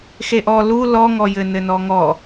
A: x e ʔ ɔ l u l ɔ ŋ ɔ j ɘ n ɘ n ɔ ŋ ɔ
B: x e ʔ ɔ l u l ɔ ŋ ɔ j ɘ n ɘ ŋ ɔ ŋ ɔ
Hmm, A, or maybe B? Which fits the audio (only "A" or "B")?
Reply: A